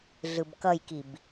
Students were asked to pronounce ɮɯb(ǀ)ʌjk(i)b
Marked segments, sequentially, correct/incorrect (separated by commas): incorrect, correct